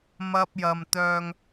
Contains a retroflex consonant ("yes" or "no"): no